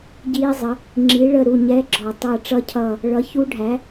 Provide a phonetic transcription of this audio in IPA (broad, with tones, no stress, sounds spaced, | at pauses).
ɟ iː˦˥ zˤ ə˨˥ | ŋ͡ǁ i˨˥ ɭ ə˦˨ ɾ u˦˨ ɲ ɛ˧˥˧ ɡ͡ǁ ɔ˨˩ tˤ ʌː˦˨ ʈ͡ʂ ʌ˦˥ cʰ ʌː˦˨ | ɭ ʌ˨˥ ç u˦˥ ɖʱ æ˨˥